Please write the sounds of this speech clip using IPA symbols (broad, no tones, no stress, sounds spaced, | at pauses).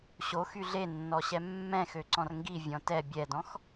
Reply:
ɕ o x y ɮ e nː ɔ ɕ ɛ mː ɛ̃ x ø ǀ ɔ̃ r ŋ ɡ i vʲ ɔ̃ t ɛ bʲ ɛ d ɔ̃ x